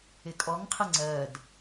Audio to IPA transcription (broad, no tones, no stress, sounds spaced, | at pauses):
ɪ kʼ ɔ ŋ qʰ ɪ ŋ͡ǀ ɜ d